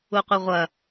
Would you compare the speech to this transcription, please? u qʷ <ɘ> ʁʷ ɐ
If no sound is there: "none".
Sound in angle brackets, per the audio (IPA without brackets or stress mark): ɘ